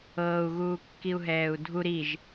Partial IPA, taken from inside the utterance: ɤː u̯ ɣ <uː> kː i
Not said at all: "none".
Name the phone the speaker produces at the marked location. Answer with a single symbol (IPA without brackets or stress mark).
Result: uː